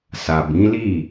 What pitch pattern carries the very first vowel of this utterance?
low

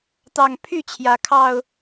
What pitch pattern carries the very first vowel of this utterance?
low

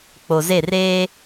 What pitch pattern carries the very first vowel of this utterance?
low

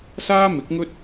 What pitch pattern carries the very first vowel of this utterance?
high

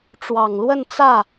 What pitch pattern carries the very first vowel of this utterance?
low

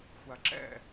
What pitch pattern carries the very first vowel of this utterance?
low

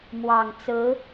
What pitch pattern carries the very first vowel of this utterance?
low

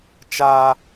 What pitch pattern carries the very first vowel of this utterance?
high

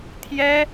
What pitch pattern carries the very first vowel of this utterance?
high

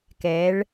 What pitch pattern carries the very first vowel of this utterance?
rising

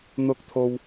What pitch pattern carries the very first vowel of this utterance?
high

